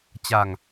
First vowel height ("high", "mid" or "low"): low